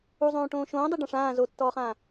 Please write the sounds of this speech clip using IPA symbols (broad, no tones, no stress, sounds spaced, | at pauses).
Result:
u zˤ õː ʈ õː ʃ õː dˤ i ɖ ã ʂ ãː z o tː ɔː χ ãː